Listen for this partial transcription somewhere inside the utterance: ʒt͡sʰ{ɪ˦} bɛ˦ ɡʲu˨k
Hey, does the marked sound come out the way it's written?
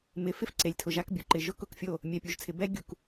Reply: no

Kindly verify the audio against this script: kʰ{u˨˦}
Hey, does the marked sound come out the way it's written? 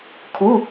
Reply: no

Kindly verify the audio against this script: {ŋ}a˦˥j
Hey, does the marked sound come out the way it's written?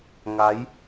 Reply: yes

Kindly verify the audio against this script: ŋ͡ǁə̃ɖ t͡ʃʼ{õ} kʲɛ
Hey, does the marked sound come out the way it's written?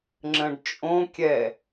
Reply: yes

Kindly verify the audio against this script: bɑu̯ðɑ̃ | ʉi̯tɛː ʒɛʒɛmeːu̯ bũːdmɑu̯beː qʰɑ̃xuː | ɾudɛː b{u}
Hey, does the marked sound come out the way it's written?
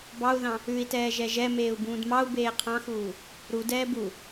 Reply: yes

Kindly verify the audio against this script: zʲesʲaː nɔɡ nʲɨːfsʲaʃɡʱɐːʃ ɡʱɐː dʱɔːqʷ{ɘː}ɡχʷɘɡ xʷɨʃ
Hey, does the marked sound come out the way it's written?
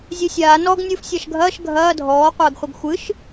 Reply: yes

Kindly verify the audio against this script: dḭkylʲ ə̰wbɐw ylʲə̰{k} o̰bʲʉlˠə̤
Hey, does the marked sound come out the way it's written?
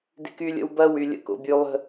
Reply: yes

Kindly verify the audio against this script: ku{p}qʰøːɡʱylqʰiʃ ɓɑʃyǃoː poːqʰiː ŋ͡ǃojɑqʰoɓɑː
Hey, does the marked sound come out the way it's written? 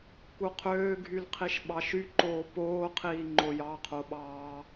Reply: no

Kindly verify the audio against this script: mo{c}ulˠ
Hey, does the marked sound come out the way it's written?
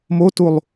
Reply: no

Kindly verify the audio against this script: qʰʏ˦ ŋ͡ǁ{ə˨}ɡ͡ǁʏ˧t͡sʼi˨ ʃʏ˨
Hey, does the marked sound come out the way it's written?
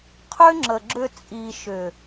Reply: yes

